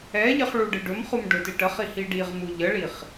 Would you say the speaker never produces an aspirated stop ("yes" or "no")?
yes